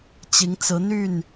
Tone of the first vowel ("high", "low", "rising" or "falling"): rising